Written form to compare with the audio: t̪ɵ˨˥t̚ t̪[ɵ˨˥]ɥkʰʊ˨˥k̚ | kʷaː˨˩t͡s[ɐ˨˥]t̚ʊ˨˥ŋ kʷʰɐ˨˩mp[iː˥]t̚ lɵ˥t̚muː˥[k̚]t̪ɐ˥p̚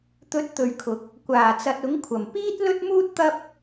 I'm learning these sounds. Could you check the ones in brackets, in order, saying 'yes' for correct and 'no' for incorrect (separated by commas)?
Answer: no, no, yes, no